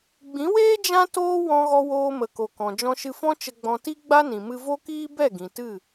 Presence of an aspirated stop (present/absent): absent